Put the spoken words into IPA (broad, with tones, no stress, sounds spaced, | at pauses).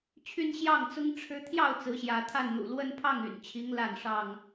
t͡ɕʰ y˦ n ɕ j ɑ˥˨ ŋ t͡s ʊ˦ ŋ ʈ͡ʂʰ ɻ̩˦ t̪ʰ j ɑ˥˨ ʊ̯ t͡s ɹ̩˨˦ ɕ j ä˨˦ t̪ʰ a˥˨ n n̪ ṵ˨˩ l w ə˦ n pʰ ɑ˥˨ ŋ y̰˨˩ n t͡ɕʰ i˨˦ ŋ l a˥˨ n ʂ ɑ˥˨ ŋ